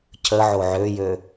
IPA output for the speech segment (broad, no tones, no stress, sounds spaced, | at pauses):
cʰ ə ʕ o ʕ ø j ø